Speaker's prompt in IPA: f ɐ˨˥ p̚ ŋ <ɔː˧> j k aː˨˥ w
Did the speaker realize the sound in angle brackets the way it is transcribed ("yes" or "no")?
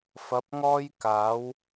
no